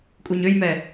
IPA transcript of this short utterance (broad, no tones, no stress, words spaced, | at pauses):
kʼuɲøjmɛ